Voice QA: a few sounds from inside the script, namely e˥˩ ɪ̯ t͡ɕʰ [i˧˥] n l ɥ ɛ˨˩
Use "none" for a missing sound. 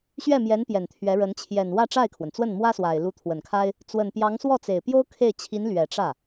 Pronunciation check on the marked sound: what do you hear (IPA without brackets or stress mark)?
i˧˥